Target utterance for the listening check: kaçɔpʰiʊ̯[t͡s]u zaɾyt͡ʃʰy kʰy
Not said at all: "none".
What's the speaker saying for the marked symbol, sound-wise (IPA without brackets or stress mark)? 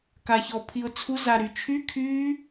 t͡sʰ